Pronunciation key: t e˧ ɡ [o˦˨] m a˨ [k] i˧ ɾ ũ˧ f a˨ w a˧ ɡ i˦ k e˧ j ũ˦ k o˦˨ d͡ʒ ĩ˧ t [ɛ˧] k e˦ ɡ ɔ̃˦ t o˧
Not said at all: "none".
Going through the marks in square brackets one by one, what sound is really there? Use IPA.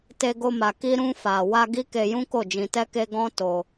o˧, k, ɛ˧

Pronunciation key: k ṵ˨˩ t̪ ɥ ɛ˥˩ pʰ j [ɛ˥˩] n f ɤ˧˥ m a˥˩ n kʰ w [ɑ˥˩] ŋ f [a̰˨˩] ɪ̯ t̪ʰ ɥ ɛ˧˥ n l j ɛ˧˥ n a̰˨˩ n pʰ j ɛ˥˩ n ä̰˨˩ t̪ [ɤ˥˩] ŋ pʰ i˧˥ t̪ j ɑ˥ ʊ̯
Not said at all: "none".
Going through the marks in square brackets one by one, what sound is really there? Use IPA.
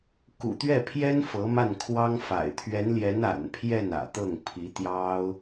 ɛ˥, ɑ˥, a̰˨˩, ɤ˥˩

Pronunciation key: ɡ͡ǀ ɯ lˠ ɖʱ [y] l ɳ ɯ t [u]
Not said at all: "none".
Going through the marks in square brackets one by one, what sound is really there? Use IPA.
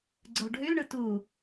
y, u

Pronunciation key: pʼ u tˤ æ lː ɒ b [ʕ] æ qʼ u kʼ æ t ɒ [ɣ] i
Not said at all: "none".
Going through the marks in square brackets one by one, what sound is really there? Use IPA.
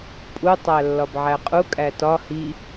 ʕ, h

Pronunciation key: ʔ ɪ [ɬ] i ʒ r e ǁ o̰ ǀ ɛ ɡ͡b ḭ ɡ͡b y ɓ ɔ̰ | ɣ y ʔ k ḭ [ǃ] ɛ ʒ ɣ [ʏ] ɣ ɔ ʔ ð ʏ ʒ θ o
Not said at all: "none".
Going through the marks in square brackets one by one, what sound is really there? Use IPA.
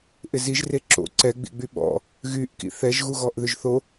z, θ, u

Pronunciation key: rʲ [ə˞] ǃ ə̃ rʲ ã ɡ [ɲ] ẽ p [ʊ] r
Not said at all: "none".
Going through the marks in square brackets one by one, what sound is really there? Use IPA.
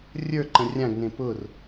ə˞, n, ʊ

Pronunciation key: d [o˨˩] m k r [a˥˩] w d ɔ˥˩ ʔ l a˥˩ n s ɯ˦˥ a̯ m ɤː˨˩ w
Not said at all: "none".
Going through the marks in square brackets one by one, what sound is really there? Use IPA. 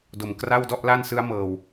o˨˩, a˥˩

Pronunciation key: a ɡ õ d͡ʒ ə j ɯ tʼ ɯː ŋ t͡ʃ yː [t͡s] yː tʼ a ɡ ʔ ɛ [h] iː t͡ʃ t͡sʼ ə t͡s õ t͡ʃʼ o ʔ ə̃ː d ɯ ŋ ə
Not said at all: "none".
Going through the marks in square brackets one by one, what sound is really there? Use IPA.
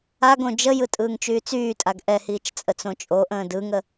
t͡s, h

